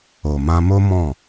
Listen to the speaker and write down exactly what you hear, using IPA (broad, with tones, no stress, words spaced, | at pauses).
o˨mã˧mo˦ mɔ̃˦˨